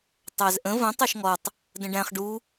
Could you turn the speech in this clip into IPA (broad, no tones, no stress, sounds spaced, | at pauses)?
tˤ æ z ʔ ə̃ v ə̃ tˤ æ ʃ ŋ ɔ tˤ | d ə̃ ɖ æ̃ χ ɖ u